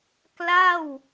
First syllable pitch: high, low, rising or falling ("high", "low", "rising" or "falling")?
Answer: falling